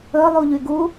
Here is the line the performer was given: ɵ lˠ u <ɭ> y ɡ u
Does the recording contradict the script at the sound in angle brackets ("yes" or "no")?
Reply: yes